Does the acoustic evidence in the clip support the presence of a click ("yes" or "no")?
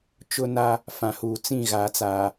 no